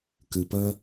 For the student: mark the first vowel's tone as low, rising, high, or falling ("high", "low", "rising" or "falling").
low